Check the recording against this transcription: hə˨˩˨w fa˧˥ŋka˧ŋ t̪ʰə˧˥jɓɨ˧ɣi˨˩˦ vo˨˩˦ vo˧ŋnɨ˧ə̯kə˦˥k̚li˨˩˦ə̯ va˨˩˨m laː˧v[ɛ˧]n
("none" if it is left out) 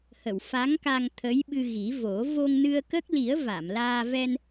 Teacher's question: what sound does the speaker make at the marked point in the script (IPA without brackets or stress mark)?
ɛ˧